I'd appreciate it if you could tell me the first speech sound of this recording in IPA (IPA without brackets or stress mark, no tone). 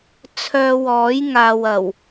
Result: t͡sʰ